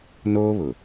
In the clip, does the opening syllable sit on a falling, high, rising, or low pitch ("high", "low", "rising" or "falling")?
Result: high